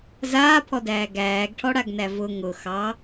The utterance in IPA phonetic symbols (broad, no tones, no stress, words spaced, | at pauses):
zaːpʰɔdæː ɡæːɡʈʰɔɽaɡnæ vʊ ŋʊ xɑ